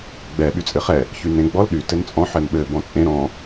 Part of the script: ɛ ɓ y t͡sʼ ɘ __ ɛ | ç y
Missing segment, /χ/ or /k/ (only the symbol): χ